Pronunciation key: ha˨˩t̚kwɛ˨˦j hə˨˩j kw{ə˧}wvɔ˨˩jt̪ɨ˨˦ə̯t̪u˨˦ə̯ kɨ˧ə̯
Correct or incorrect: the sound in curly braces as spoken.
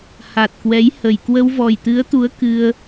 correct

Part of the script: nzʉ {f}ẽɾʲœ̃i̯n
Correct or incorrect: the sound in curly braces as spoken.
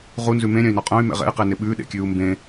incorrect: m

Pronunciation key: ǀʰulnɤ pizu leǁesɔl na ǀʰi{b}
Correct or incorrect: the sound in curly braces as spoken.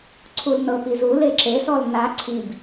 correct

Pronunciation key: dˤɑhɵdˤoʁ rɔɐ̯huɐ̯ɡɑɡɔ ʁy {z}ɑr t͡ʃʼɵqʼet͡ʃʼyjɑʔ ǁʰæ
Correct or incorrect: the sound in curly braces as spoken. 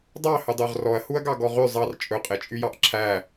incorrect: zˤ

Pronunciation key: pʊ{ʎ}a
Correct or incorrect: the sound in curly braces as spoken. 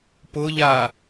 correct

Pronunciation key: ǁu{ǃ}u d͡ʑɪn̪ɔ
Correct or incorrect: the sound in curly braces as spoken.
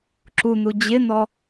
incorrect: n̪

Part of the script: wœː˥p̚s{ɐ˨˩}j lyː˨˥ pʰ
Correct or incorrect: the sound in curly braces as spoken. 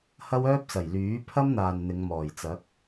correct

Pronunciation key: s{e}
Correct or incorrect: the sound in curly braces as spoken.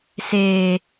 incorrect: eː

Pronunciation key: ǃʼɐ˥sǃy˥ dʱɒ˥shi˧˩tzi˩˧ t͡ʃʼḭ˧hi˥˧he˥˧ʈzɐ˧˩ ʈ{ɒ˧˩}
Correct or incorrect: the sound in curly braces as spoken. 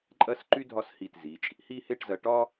incorrect: ɒ˥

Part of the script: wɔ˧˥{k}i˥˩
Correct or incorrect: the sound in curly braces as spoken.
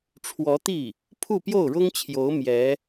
incorrect: t̪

